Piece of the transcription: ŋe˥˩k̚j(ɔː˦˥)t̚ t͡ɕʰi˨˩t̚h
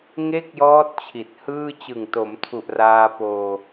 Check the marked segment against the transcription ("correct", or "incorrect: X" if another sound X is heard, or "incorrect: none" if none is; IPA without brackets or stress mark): correct